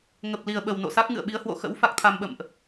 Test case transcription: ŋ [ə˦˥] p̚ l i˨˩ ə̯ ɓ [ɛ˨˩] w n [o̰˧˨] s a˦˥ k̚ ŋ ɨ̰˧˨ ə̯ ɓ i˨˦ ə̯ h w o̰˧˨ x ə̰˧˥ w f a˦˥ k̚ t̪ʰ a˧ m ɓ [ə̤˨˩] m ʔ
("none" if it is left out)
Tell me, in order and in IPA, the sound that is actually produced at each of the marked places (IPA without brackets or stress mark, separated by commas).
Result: ə˨˩, ə˨˩, o̰˧˨, ə̰˧˨